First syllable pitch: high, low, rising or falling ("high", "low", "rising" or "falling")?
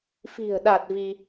low